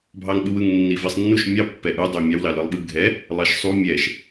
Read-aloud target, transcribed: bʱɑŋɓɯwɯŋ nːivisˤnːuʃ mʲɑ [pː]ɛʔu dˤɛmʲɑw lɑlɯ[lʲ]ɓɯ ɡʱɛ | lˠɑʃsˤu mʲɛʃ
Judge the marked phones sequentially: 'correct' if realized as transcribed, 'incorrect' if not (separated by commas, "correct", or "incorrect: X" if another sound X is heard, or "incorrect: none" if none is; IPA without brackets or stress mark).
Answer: correct, incorrect: lˠ